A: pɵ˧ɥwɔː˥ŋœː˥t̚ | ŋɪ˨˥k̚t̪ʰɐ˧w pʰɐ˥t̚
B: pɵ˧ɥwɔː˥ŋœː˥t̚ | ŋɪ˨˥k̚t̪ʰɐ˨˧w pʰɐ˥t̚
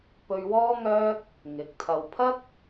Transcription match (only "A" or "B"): A